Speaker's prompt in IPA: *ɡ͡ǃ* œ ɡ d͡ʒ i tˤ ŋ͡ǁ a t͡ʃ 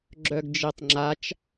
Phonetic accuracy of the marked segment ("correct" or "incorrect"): incorrect